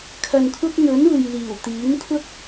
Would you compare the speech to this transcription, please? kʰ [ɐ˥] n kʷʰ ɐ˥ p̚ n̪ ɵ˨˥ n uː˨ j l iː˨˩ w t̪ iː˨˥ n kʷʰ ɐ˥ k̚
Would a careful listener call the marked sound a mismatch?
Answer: yes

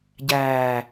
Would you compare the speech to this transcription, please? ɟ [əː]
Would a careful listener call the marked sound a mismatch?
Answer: yes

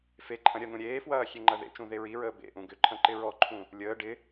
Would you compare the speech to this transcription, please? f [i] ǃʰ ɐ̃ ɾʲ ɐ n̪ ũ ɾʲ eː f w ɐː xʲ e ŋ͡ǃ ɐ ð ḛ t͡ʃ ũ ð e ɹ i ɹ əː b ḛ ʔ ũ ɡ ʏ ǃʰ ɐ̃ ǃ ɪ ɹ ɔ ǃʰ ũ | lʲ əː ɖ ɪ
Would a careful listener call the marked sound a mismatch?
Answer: yes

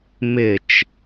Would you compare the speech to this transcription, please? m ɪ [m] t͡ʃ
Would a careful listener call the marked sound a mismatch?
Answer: yes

